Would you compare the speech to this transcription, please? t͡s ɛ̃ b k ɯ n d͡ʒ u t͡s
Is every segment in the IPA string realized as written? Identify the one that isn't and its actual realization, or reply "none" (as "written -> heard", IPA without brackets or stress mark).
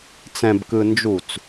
none